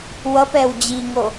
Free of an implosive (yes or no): yes